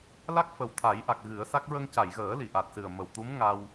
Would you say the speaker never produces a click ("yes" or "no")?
yes